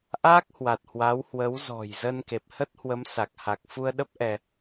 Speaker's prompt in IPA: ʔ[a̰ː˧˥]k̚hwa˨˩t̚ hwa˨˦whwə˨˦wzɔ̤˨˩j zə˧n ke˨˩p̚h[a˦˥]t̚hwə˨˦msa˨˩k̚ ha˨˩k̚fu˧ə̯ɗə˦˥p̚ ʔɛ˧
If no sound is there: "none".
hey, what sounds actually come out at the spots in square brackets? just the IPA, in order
aː˦˥, ə˦˥

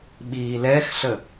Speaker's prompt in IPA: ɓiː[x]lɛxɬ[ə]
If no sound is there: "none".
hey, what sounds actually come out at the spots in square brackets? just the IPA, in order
none, ə

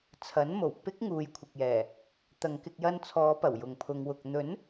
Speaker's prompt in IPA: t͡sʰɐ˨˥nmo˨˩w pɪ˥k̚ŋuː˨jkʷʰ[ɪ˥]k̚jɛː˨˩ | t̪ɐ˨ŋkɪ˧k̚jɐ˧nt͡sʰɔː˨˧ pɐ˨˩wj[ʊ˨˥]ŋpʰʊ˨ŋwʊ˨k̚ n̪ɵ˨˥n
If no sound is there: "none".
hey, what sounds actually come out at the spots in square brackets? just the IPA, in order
ɪ˨, ʊ˨

